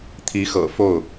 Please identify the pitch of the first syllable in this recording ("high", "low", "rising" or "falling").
rising